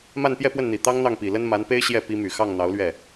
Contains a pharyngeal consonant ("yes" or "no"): no